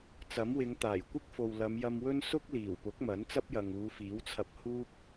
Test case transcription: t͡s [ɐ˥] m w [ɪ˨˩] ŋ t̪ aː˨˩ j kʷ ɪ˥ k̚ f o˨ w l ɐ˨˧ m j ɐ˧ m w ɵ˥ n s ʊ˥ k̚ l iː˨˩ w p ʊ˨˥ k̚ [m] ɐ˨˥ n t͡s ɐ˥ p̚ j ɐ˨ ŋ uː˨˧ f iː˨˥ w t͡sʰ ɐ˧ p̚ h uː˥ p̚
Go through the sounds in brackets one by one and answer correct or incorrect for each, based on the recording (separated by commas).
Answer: incorrect, incorrect, correct